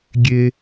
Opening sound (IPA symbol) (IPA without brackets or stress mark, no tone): ɡʲ